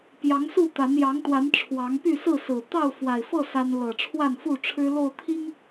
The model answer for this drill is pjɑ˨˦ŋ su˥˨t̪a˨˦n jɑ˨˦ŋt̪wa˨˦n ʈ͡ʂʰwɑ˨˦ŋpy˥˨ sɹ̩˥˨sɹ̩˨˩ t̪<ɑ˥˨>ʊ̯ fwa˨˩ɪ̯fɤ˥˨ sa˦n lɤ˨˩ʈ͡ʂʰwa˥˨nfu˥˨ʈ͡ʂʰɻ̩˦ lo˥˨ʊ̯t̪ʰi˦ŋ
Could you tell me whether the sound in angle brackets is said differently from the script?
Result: no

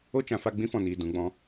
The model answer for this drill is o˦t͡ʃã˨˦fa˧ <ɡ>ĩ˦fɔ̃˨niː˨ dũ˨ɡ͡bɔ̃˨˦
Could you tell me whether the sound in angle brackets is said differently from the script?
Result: yes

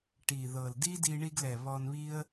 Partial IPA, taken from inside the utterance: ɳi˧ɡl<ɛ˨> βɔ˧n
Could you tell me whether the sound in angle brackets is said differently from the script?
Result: no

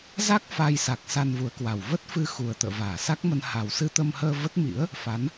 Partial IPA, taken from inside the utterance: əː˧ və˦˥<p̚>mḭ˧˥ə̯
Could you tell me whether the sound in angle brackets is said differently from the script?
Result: yes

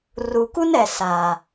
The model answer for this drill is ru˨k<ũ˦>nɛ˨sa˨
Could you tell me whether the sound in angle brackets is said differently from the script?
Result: yes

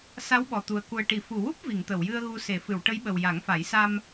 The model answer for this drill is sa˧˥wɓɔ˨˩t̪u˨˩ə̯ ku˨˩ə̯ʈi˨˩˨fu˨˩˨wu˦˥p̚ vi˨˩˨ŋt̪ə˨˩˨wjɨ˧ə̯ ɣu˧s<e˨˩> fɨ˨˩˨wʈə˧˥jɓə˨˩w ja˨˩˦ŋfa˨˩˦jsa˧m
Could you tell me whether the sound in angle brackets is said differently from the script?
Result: yes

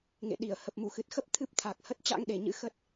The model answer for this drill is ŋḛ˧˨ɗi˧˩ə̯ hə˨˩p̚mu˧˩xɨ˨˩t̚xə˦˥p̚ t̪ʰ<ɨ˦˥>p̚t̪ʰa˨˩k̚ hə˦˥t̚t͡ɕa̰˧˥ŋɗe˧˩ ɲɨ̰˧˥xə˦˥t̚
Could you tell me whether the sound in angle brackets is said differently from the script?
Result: no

